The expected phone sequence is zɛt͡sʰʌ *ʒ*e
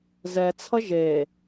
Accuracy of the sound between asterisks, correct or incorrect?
correct